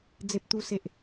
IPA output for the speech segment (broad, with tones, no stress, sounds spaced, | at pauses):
d͡z e˦ p̚ t̪ u˦ s e˦ ʔ